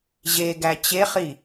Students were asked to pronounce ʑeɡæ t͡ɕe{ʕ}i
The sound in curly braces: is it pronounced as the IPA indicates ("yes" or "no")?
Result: no